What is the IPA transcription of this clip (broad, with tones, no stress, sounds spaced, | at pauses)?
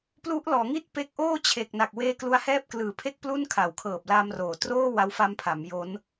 p l u˦˥ ʔ l ɔː˩˦ ŋ i˥˩ t̚ p e˦˥ k̚ ʔ oː˥˩ t͡ɕʰ e˨˩ k̚ n a˨˩ k̚ w eː˥˩ k l u˦˥ a̯ h ɛː˥˩ p̚ k l ɯː˨˩ pʰ e˥˩ k̚ p l u˥˩ n kʰ a˩˦ w kʰ ɤː˨˩ p̚ l a˧ m r oː˩˦ t r oː˥˩ w a˦˥ w f a˦˥ m pʰ a˩˦ m j o˦˥ n